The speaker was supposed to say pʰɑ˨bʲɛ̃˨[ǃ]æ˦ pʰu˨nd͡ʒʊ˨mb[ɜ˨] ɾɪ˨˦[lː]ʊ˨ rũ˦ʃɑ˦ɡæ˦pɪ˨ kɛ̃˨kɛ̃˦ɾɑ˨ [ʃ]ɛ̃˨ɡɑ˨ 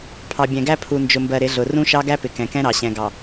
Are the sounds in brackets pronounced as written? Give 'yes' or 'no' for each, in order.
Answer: no, yes, no, no

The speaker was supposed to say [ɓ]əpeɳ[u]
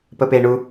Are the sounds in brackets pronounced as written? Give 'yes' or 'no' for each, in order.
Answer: no, yes

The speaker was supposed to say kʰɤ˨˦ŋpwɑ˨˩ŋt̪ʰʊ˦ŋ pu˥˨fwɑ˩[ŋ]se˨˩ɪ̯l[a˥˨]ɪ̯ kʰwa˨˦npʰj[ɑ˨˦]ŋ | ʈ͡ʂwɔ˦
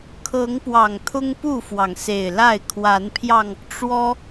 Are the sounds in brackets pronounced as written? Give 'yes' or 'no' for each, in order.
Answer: yes, yes, no

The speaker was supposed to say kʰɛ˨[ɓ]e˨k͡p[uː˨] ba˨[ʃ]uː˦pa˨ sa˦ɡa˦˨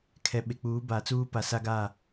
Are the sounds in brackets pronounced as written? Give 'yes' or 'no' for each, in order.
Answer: yes, no, no

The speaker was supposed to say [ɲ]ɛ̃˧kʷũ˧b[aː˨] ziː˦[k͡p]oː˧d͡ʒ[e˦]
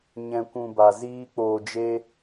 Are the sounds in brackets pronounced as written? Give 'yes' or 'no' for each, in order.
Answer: yes, no, yes, yes

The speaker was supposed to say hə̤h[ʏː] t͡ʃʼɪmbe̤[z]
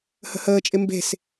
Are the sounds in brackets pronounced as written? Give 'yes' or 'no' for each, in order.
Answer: no, no

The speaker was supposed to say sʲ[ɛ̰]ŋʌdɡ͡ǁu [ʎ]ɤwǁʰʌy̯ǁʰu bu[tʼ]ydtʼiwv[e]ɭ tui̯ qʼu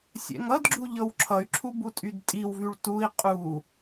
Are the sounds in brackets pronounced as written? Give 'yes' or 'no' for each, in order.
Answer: yes, yes, yes, no

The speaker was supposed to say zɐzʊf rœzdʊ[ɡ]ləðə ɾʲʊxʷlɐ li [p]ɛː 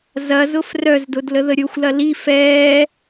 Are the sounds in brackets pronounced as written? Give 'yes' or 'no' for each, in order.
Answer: no, no

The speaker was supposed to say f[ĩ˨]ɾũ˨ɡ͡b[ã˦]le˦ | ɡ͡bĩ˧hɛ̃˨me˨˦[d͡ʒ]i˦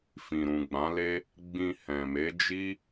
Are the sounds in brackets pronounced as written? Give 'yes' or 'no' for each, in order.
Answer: yes, no, yes

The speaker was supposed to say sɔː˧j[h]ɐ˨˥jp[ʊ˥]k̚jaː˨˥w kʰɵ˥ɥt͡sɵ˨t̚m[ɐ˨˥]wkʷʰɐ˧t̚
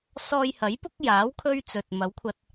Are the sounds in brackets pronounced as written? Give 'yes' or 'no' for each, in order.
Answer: yes, yes, yes

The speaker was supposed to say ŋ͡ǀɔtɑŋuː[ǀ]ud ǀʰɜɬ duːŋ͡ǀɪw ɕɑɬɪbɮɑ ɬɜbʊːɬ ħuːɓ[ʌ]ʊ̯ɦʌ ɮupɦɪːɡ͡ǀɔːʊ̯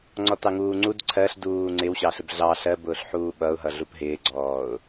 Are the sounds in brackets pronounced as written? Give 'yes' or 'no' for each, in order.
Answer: no, yes

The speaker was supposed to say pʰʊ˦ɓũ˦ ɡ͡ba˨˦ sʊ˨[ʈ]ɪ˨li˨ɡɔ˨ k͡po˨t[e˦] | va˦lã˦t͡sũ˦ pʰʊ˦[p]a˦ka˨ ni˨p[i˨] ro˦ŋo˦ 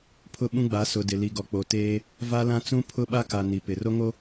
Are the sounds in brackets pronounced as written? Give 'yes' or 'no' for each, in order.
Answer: no, no, no, no

